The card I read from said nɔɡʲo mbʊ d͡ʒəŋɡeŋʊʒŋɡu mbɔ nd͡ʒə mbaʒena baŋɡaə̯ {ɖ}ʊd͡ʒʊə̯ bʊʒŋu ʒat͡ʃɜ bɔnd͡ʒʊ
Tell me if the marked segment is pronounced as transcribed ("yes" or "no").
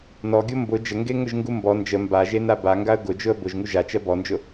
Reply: no